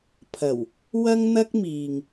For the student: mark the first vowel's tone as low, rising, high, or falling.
low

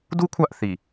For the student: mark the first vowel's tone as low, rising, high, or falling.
high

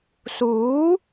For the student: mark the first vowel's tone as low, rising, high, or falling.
rising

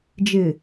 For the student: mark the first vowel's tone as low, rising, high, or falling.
low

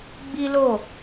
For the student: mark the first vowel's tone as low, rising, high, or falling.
high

